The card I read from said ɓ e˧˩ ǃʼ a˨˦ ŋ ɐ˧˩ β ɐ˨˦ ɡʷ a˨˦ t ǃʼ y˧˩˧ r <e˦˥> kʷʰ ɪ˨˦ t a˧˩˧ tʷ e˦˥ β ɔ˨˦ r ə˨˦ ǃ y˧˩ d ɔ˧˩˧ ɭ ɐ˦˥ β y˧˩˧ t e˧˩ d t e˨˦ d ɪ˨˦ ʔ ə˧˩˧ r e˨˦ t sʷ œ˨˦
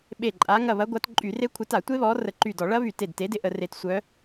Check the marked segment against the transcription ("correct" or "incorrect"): correct